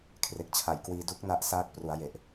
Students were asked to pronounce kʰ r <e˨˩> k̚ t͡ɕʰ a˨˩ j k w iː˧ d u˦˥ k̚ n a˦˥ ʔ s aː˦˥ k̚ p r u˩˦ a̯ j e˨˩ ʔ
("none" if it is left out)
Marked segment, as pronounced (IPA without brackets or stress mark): e˨˩